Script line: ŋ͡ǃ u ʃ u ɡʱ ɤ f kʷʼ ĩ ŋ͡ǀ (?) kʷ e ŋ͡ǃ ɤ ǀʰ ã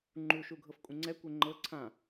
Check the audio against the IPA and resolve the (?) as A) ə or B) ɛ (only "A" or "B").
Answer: B